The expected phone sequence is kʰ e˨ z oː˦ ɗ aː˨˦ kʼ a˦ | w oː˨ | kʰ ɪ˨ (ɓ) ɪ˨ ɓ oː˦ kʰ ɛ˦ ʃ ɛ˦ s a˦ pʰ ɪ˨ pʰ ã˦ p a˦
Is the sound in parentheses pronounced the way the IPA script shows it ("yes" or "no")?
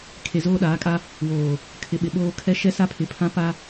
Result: yes